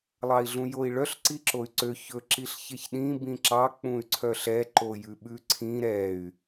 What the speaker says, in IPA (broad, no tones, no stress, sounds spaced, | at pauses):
lˠ ɑ i̯ ɮ ũ j o i̯ ɭ œ ɬ ǀ i ǁ o y̯ ǀ ø ç ɵ ǁ i ɬ ç e ç ɗ ĩ b ĩ ǁ ɑ k͡p ũ y̯ ǀʰ œ ɬ ɛ ǃ o j ʉ ɓ ʉ ǀʰ ĩ ɾ ɛ y̯